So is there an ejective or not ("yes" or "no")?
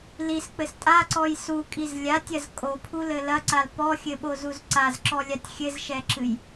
yes